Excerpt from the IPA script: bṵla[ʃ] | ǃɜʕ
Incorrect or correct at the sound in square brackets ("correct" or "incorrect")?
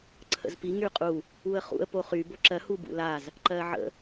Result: incorrect